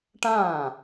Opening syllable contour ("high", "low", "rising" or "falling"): falling